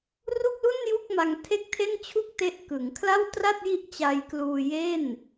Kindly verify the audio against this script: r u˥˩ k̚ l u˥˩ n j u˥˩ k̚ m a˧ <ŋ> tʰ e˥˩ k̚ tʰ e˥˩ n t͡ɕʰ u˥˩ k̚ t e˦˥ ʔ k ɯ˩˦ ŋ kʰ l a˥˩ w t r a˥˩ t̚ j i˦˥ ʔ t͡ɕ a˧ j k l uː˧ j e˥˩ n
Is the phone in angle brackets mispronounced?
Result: no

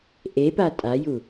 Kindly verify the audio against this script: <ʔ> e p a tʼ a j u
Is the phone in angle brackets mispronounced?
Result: no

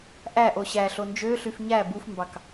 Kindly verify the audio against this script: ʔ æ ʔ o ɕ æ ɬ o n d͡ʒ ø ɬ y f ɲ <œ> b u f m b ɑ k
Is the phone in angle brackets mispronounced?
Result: yes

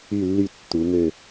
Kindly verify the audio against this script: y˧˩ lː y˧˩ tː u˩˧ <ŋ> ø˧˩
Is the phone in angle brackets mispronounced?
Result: no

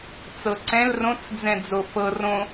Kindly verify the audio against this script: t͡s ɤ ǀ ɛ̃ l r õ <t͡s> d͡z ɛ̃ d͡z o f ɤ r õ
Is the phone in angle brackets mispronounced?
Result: no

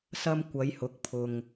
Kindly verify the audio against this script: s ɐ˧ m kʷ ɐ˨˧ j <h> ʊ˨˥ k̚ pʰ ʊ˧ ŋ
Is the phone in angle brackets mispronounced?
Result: no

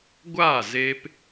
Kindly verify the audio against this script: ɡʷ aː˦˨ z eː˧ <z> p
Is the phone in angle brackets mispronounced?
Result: yes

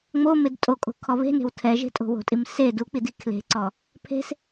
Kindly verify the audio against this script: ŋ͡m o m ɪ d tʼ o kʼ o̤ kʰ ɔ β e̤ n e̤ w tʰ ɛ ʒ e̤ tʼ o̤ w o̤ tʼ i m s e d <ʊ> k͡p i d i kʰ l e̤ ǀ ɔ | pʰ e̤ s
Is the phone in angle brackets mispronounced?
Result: yes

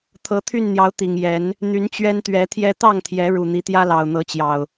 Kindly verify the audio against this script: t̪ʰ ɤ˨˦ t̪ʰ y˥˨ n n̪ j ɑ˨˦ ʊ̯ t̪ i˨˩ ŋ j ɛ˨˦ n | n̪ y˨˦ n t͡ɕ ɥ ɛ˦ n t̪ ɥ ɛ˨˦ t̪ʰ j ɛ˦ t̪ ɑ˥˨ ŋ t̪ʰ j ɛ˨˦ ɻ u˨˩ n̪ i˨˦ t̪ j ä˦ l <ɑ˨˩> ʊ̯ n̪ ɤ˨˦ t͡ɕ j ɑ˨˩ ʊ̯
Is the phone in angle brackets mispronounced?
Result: no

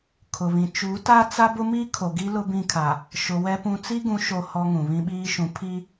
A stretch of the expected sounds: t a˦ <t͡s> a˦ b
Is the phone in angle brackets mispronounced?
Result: no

